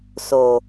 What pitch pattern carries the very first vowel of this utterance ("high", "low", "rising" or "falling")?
low